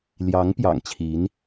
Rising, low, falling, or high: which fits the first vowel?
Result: rising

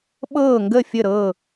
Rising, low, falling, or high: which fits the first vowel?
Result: falling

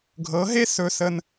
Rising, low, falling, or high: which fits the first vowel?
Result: rising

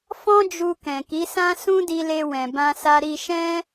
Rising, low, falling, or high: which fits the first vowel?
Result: high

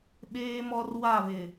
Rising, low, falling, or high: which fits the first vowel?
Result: high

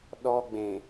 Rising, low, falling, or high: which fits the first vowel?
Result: high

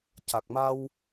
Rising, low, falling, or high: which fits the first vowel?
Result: low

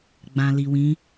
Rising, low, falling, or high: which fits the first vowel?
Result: low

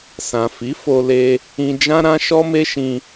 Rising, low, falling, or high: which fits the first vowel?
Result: low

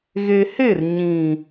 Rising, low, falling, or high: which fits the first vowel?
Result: low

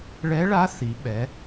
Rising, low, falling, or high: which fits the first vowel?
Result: rising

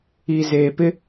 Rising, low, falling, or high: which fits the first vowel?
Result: low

